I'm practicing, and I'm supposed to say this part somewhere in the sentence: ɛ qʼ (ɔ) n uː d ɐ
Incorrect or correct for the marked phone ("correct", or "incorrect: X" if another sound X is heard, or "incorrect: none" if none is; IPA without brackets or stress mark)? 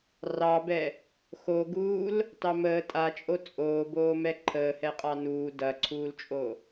incorrect: ɑ